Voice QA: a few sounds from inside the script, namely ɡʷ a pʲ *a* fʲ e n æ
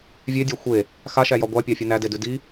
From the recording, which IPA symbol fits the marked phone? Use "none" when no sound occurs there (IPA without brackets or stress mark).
ɑ